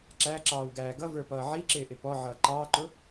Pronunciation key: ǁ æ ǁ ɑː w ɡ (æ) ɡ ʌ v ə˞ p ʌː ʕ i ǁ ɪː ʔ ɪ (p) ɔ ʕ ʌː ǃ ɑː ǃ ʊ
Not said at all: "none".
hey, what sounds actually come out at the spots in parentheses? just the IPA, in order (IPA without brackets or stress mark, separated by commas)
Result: æː, p